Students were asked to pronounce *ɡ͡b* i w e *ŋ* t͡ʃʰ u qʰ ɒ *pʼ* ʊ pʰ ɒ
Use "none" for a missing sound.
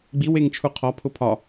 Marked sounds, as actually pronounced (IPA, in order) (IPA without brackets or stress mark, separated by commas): ɡ͡b, ŋ, pʰ